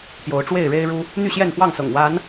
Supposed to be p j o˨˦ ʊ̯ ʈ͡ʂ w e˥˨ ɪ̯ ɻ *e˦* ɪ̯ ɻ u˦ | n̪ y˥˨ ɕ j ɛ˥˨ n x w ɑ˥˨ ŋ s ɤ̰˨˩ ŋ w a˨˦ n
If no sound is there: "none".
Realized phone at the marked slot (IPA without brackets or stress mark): e˦